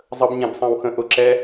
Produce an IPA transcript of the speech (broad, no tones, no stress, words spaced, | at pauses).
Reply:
zˤəb ɲɛ̃bsˤɛ̃wxə̃ ʔʊ ǁɛ